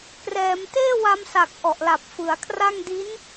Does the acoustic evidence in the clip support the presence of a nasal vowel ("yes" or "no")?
no